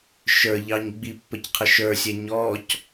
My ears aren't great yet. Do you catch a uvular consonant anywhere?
yes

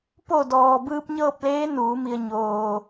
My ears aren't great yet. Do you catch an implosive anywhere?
no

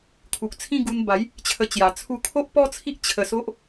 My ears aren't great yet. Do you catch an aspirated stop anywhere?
yes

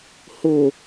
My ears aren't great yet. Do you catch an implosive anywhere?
no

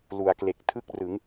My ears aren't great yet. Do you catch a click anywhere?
no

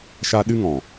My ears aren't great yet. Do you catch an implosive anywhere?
yes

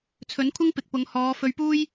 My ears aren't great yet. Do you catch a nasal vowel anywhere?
no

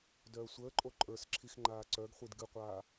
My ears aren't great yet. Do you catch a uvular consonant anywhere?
yes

